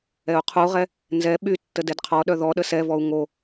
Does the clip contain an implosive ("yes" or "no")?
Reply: yes